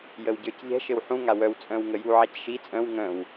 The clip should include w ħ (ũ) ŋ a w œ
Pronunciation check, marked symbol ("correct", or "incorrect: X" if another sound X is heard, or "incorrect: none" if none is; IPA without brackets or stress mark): correct